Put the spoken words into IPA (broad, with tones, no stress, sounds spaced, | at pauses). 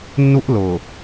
nː u˦ ʔ l ʊ˨